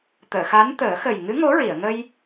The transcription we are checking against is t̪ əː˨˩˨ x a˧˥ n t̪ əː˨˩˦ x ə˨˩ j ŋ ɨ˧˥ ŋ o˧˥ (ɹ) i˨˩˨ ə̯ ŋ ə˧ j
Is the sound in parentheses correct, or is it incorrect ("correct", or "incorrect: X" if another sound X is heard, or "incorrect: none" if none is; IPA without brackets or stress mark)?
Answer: correct